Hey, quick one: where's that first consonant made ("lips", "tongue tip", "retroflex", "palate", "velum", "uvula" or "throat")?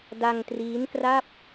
tongue tip